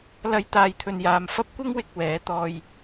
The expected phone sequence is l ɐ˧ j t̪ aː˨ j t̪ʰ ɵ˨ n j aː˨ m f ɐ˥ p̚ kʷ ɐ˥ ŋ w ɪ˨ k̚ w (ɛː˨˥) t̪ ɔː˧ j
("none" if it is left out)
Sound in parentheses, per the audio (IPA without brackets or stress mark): ɛː˨˥